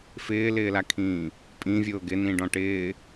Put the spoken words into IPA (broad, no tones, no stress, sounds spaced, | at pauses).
f ɪː l ɪː l a kʰ ĩː | pʼ ĩ vʲ ʊː ɡ ɪ n ĩ ɖ ɔ̃ ʈ ɪː